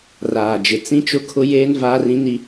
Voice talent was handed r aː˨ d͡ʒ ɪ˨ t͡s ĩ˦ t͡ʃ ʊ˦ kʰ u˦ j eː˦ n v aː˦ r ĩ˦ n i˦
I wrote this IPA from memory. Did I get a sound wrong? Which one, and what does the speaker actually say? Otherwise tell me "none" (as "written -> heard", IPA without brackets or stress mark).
u˦ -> ʊ˦